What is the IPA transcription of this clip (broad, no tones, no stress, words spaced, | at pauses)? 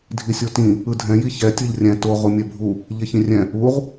dʱisʲotĩ | ɯdʱɛ̃ jiçɛ tʲɤʎrʲɛ̃ to ʁumʲɛbʱu | ʎeçĩrʲɛ̃ | uʁ